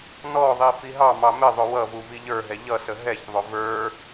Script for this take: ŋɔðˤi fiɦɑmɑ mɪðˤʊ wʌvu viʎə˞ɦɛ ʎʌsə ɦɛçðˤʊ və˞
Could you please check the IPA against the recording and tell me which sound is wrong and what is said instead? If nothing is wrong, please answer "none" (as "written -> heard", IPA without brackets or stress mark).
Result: ŋ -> n